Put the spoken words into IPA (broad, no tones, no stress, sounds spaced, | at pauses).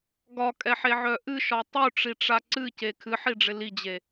ɡ ɒ kʼ ɛ ħ e ʕ œ ʔ ɨ ʃ ɒ tˤ u ʈ͡ʂ i ʈ͡ʂ a ǀ ɨ c e kʰ ɨ ħ i ɖ͡ʐ ɪ l i d͡ʑ e